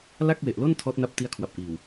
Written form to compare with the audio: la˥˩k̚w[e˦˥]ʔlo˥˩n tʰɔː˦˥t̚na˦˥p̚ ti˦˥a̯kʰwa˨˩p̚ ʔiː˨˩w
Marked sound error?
yes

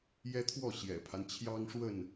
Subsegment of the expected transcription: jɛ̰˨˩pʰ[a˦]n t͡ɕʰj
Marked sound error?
no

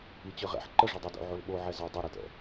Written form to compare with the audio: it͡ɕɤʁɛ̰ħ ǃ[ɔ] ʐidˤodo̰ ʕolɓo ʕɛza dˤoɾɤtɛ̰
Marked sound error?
yes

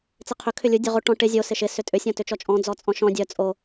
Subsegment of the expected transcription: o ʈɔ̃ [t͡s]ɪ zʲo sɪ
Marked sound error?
yes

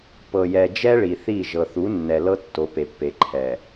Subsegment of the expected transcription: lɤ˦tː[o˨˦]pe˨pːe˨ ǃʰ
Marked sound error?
no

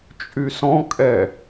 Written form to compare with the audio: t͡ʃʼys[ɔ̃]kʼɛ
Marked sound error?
no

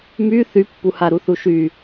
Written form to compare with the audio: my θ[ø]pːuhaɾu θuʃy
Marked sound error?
yes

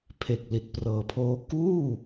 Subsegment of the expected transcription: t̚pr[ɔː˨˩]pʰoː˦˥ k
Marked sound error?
yes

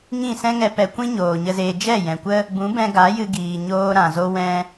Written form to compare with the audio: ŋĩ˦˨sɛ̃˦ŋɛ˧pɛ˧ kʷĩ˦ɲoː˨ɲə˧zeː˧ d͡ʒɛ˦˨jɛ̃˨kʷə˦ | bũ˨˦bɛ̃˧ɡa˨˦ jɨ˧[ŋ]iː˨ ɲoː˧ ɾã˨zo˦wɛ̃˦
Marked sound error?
yes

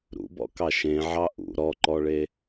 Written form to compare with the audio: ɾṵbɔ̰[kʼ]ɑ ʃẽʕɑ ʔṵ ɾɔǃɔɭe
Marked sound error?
yes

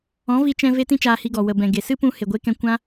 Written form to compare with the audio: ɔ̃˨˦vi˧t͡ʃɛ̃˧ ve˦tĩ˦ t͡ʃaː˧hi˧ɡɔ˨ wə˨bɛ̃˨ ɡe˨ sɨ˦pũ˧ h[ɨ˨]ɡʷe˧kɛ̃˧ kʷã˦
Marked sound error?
yes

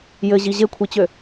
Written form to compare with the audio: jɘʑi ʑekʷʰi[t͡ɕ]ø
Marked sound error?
no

